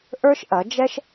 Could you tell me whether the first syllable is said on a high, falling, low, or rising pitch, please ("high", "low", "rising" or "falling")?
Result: high